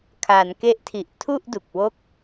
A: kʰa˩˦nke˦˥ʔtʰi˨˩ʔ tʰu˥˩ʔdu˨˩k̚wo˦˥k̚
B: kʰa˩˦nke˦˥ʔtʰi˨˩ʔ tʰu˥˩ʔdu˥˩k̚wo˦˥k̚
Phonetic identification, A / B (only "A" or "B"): A